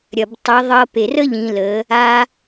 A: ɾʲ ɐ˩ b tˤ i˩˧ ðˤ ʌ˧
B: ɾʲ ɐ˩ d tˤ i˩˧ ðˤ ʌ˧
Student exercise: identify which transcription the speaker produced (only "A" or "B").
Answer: A